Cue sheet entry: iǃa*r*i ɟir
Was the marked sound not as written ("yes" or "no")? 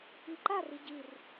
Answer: no